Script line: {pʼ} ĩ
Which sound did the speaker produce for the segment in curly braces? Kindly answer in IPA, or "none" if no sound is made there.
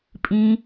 pʼ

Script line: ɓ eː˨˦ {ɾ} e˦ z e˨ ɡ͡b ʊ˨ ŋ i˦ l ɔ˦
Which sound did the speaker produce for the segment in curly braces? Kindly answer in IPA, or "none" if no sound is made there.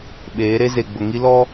ɾ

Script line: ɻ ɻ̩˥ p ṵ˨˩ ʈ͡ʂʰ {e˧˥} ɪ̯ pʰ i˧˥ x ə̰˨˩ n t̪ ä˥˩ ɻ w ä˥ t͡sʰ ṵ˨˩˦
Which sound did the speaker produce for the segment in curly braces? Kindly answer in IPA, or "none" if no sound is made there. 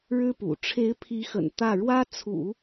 e˧˥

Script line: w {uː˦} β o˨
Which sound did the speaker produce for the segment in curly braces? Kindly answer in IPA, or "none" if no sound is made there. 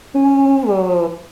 uː˦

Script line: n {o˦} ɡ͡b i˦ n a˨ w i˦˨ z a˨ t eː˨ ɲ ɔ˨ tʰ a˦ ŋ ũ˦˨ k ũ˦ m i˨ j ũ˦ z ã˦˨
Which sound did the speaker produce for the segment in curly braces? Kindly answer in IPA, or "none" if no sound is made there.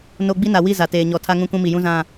o˦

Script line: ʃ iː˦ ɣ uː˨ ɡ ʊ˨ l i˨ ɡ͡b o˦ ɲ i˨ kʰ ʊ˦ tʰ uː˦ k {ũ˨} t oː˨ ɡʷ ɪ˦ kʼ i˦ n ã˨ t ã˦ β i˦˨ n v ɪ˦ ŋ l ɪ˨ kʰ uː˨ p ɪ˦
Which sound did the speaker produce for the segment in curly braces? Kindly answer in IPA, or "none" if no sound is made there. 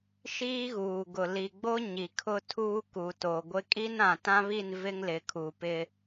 u˨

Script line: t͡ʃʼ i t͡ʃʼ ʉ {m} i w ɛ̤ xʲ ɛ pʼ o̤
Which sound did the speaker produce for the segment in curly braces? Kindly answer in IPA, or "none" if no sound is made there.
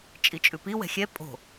p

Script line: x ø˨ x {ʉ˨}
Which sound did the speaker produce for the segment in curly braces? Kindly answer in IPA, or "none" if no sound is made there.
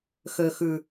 ʉ˨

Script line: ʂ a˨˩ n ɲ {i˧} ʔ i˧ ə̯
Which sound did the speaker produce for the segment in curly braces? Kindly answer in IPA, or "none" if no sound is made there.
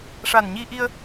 i˧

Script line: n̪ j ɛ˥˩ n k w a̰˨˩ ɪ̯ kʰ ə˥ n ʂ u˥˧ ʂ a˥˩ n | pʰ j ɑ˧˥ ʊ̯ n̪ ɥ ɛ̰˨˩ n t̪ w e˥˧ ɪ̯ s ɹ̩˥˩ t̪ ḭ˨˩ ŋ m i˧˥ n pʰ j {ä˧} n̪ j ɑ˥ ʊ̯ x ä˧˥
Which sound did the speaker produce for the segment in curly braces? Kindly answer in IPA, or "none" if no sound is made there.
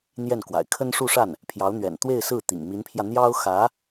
ä˧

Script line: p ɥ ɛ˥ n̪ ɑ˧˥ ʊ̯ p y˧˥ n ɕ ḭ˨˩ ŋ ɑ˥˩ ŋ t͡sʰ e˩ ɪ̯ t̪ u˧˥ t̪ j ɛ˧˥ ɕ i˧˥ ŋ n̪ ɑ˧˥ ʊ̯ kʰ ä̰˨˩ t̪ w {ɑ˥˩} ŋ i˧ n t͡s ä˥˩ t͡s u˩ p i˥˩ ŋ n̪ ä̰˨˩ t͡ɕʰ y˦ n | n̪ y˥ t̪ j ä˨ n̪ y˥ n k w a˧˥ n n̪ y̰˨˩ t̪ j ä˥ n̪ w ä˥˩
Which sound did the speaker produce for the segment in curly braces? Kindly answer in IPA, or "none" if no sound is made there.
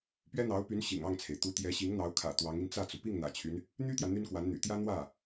ɑ˧˥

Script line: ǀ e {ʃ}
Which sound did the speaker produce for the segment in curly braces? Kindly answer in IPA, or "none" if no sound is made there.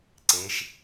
ʃ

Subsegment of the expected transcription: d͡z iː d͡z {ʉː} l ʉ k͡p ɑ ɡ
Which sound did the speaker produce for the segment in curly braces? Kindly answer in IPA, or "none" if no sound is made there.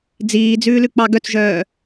ʉː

